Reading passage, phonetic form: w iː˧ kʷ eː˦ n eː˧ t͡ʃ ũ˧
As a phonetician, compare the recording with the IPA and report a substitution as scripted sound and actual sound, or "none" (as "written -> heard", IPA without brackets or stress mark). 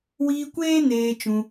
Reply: none